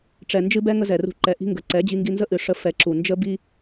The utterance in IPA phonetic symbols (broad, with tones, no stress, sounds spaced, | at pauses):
ʈ͡ʂ ɛ˨ n d͡ʒ ɨ˦ b ɛ˦ ŋ ə˦ z ɛ˨ r ṳ˧ ǃ ɛ˨ ʔ i̤˦ ŋ ɡ ə˨ ǀ ɛ˨˦ d͡ʑ i˧ ŋ ɡ i˧ n z ə˦ ʔ ɨ˨ ʂ ə˧ f ɛ˧ ǁ u˨ n d͡ʒ ə˦ b i˦